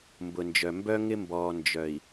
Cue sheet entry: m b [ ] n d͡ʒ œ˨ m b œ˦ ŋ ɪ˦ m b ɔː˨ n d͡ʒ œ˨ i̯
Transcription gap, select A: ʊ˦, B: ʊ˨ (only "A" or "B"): B